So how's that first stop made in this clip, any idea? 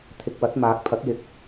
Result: aspirated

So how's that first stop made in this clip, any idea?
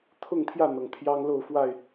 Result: aspirated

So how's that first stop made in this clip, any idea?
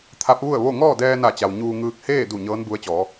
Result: aspirated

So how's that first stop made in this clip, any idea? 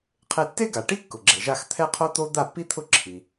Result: aspirated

